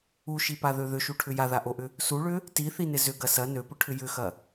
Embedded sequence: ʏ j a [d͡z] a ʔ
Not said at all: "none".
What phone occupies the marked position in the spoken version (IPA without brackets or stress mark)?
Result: ð